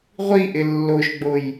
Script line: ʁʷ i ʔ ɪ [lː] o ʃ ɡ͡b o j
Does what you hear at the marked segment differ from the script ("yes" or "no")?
no